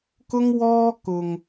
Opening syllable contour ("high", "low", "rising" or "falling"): high